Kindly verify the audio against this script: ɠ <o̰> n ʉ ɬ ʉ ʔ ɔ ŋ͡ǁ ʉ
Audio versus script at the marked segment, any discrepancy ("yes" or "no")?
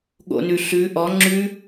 no